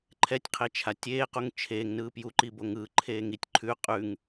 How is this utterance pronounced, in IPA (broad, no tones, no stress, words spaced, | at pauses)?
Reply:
ǃʰɛtʲqʰet͡ʃʰa tʲeːquŋ t͡ʃʰeːŋnɯː pjuǃiboŋ ɯːǃʰeː ŋitʲ ǃʰʉ qʼʉŋ